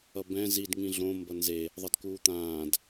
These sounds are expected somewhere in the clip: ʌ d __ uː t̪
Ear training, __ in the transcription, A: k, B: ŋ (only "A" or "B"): A